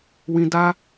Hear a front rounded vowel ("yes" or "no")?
no